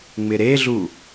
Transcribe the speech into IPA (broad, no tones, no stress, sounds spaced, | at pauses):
ŋ͡m ɪ ɾ e ɮ u